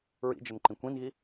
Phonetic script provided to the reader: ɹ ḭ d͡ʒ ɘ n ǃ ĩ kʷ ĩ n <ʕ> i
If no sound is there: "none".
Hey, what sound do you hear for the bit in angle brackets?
ɣ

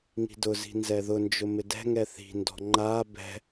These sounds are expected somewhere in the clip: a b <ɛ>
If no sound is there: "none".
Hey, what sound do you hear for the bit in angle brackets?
ɛ̤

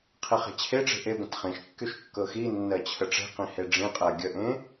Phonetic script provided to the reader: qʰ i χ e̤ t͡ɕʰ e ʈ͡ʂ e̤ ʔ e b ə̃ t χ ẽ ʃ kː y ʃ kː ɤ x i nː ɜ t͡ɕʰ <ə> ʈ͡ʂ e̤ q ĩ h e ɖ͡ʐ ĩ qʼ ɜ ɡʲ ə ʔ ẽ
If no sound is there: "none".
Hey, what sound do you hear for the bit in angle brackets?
ə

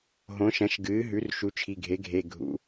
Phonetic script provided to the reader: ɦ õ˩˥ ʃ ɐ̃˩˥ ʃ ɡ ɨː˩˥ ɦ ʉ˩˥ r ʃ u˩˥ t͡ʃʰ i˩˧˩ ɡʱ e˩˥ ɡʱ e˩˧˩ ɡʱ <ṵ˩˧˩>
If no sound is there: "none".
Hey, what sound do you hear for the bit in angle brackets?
ṵ˩˧˩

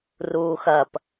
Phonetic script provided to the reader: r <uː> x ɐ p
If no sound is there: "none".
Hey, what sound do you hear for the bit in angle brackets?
uː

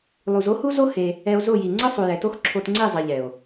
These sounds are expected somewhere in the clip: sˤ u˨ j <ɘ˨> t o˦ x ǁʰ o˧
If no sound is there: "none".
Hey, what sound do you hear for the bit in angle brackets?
ɛ˨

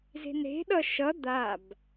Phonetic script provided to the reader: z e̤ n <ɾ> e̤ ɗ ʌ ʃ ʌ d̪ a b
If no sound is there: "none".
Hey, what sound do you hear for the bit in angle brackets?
ɾ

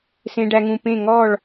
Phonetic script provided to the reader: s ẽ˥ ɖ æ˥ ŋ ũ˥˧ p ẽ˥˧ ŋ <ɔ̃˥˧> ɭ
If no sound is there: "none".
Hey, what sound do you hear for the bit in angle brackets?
ɔ˥˧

